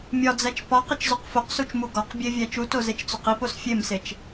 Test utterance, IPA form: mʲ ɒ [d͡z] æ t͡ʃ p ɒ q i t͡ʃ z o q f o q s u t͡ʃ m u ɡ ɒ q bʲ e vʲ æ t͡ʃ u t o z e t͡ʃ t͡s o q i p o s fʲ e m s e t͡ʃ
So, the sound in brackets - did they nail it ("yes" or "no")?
yes